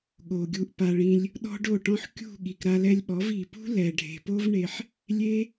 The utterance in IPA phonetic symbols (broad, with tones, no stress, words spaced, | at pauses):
ɠo˨ɡʲu˧ʔpa˧ɭĩ˦lʲ | ɗɔ̤˦ɖo˦˨ʈɔ̃˦ħ kʲṳ˦˨ ɠi˨kɾa˧lɛ˧lʲɓɔ˨˦v i˨pṳ˦lɛ˨ ɖʱe̤˨po˦vɳe˧ħ | lʲe˦